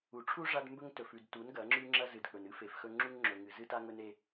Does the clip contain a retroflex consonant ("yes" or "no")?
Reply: yes